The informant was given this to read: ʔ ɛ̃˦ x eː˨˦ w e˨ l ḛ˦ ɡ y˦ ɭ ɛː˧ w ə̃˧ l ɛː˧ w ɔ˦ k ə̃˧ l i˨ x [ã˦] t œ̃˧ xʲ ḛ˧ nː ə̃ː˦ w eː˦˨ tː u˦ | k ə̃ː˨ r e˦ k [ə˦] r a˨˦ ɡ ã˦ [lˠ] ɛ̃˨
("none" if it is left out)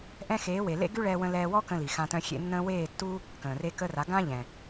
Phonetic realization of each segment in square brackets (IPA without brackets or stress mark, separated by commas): ã˧, ə˦, ʎ